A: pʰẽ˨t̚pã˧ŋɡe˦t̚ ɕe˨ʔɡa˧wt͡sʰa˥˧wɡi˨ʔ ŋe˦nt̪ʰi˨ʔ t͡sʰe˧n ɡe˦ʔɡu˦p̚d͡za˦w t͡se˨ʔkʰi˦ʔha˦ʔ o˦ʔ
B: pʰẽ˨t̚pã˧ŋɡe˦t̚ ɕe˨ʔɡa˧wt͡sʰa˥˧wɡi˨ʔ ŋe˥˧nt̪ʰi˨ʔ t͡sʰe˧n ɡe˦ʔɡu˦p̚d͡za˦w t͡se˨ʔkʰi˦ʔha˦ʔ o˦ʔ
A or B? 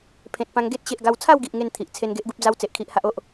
B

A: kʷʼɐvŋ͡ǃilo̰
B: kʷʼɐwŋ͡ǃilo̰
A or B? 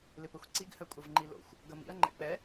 A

